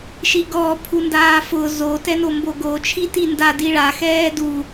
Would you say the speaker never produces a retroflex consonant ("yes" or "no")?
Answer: no